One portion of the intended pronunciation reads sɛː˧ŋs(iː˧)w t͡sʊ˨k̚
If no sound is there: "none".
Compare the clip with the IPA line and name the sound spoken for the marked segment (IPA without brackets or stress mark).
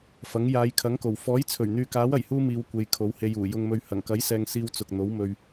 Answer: iː˧